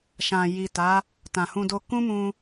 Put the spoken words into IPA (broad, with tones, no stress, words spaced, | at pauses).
ʃã˨ji˨ ta˨˦ | tã˨hũ˧do˧ kũ˦mũ˧